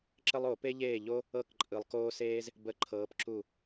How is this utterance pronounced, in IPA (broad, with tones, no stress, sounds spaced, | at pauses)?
ǁ ə˥ lˠ o˨˩˦ p e˥ ʎ eː˥˩ ʎ o˥ | ɤ˥˩ k ǃʼ ɯ˨ lˠ k oː˥ s eː˥ z | b ə˧˥˧ ǃʰ ɤː˨˥ p ǁ u˥˩